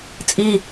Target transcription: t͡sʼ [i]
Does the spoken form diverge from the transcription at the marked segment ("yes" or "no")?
no